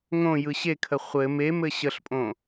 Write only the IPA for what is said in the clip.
ŋõ jɯɕekʰə χʷɘ me mɘɕəɬpʼõ

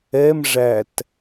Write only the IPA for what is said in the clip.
ɛm ʐæt

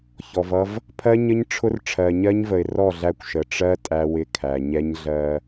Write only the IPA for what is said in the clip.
çɔ˨vʌ˦v | pʰɜ˦ɲə˦ɲʈ͡ʂʰʊ˦r ʈ͡ʂʰɜ˨ɲɜ˦ɲvə˨ɪ̯rɔ˦˨ ɮæ˦kʷʃə˨ ʈ͡ʂɜ˦ tʼæ˦wɪ˦kʰæ˨ ɲɛ˦ɲɮɜ˦

